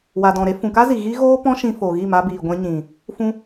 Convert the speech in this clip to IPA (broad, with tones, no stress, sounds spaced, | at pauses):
w a˨ d ɔ̃˨ ɾ e˧ f ũ˨ k a˦ z i˨ ɣ i˦ ɣ oː˦ p ɔ̃˦ ʃ ĩ˧ f o˨ ɣ i˦˨ m a˧ b iː˨ ɡʷ ɛ̃˧ ɲ ĩ˨ | f ũ˧